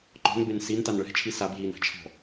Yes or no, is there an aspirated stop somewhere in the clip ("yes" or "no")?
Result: yes